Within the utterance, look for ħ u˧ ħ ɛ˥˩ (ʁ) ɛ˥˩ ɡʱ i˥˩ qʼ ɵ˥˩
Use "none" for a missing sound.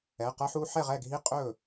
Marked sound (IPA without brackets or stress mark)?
ʁ